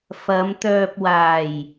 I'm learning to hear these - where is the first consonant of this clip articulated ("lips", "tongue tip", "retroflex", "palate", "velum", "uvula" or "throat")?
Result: lips